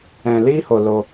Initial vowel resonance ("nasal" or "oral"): nasal